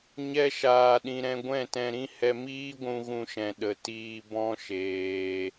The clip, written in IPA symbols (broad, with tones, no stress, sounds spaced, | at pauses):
ɲ ɛ˧ ʃ aː˨ ɗ ĩ˨ ɾ ɛ̃˧ ɡʷ ɛ̃˦˨ t ɛ̃˧ ɾ ĩ˦ h ɛ˧ m iː˦ ɡʷ ũ˧ ɣ ũ˧ ʃ ɛ̃˨ ɗ ə˨ t iː˧ b ɔ̃˦ ʃ eː˧